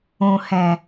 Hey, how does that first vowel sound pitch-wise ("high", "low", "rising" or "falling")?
low